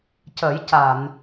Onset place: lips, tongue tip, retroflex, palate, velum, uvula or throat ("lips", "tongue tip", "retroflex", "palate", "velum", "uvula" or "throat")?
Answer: palate